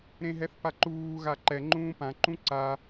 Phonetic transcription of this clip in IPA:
ɾ ẽ ɦ ɛ θ p a ǃ uː ɣ a ǃ ɛ ŋ͡ǃ ũː p ã ǃ ũ ǀ a

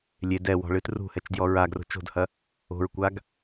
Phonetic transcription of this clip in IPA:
lʲ e d ɛ w ɔ̤ ɭ ɨ t r ṳ h ɛ t͡ʃ d j ɔ ɹ a ɡ r o̤ t͡ʃ o̤ d h ɐ | o̤ ɹ kʷ a ɡ

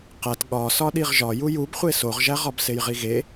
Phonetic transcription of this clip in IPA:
q æ t ɠ ɒ s ɒ ɗ i ʁ ʒ ɒ j u j u b χʷ e s o ʁ ʒ æ ʁ ɒ b s e j ʁ i ɣ e

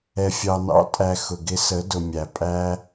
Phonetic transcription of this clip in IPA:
ɛ˨ fʲ ɑ˨ n ɑ̰˨˦ tʼ æ˨ x ʊ˨ ɡ ɪ˧ s ə˨˦ d ʊ˨ mʲ æ˨ pʼ æ˦

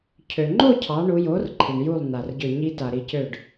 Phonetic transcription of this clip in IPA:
cʰ ø˩ ŋ͡ǃ o˥˧ cʰ ɑ˩˧ ɳ u˩˧ j o˩˥ r ǃʰ i˩ ɳ j u˧˩ lˠ n a˩ r ɟ ø˧˩ ɲ i˧ t a˩ ɾ i˧˩ c ø˧˩ ɖ

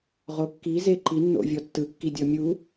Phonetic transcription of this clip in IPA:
ʁ o kː i z e ǃ i nː o̰ vʲ ɔ tː ɯ kː i dʲ ɔ mʲ u

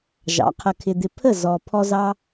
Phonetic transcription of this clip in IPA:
ʒ ɑ̰˨˦ qʰ ə˧ kʰ ɪ˧ d̪ ɪ˧ pʰ ə˦˨ z ɔ˧ pʰ ɔ˧ z ɑ˧

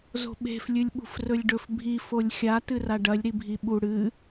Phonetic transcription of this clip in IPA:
z o̤ ɓ e̤ f lʲ ɨ lʲ ɓ ṳ f r ɵ lʲ ɖ ɵ f bʱ i f o lʲ xʲ a t ɨ r a ɖ ɐ lʲ ɾ i bʱ i ɓ u ɽ ɨ

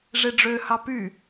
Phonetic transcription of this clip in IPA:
ʐ e ɖ͡ʐ ø h ɑ p y

